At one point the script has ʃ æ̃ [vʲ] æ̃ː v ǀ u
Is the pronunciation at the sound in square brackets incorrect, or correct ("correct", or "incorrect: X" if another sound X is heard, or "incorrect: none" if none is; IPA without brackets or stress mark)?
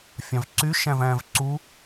incorrect: v